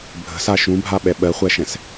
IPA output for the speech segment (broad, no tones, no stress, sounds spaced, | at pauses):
bʱ ə̤ s a ʃ ũ bʱ a ɓ ɛ ɓ ɜ χʷ æ ʃ ɛ̃ s